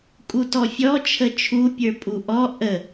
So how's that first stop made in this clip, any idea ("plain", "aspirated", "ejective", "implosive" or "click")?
ejective